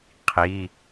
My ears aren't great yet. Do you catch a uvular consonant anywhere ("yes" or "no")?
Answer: yes